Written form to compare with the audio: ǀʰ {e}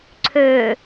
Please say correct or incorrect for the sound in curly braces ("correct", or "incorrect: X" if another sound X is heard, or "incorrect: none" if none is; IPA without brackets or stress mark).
incorrect: ø